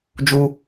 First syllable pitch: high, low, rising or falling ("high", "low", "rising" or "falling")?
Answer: high